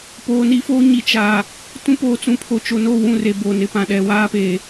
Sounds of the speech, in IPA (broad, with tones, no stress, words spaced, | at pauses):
poː˨ ni˦foː˦ ɲi˨ t͡ʃaː˨ | tũ˦poː˨t͡sũ˨˦pʰo˨ t͡ʃo˨no˦˨ wũ˦˨re˨bo˨nɪ˨ pã˨ɗɛ˨ waː˦peː˨